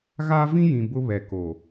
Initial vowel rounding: unrounded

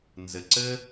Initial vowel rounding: unrounded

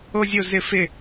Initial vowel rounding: rounded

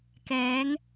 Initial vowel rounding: unrounded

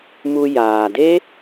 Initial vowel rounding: rounded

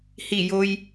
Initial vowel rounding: unrounded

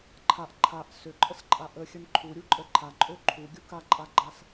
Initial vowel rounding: unrounded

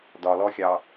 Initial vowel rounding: rounded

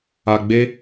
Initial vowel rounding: unrounded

